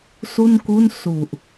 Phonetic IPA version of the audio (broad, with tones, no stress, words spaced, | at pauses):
su˥˩nku˥˩n su˨˩ʔ